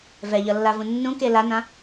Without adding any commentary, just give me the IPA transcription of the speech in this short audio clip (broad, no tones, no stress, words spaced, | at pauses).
vɛʎʌlːavũ nːũke lanã